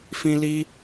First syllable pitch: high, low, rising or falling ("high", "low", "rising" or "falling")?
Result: high